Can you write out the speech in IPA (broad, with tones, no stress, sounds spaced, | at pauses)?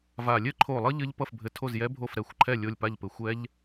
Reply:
v a˧˩ lʲ ɘ˦˥ ǃʰ o˧˩ lˠ ʌ˦˥ ʎ ɘ˦˥ ʎ p ʌ˥˨ f bʱ ɘ˧˩ tʰ o˥˨ z j ɛ˦˥ bʱ o˥˨ f ɾ ɛ˧˩ xʷ ǃʰ ɛ˥˨ lʲ o˥˨ lʲ p a˥˨ ʎ p ɘ˧˩ xʷ ɛ˦˥ ʎ